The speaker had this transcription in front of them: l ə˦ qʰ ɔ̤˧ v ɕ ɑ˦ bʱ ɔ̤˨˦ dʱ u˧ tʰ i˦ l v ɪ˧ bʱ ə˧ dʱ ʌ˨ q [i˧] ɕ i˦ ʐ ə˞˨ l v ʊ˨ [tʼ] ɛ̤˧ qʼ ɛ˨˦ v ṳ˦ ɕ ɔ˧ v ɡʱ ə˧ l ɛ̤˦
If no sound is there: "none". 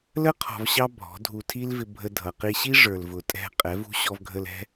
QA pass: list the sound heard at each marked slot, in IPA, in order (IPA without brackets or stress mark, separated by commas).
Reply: i˧, tʼ